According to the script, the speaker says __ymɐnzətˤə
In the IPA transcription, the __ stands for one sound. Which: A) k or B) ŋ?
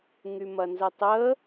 B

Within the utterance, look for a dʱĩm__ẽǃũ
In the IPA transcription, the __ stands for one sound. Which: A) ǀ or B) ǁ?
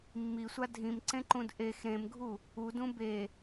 A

